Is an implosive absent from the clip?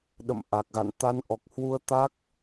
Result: no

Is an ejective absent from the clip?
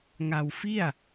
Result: yes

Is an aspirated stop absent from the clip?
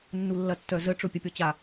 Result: yes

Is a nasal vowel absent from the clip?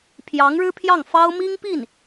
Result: yes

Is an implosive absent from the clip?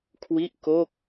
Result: yes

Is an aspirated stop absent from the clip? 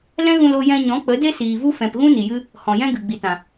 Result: yes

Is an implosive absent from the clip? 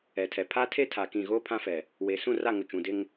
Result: yes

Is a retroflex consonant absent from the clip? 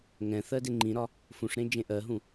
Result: no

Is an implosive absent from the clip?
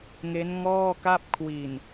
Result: yes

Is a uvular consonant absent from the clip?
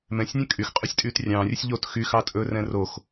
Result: no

